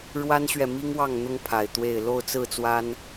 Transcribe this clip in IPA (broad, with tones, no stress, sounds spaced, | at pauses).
ɻ w a˦ n ɕ ɥ ɛ˨ m i˦ ŋ w ɑ˥˨ ŋ n̪ ʊ˦ ŋ pʰ a˨˩ ɪ̯ t̪ w e˥˨ ɪ̯ l o˥˨ ʊ̯ t͡s ɹ̩˥˨ t͡s w a˦ n